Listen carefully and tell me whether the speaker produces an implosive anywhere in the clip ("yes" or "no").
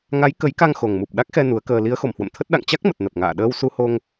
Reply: yes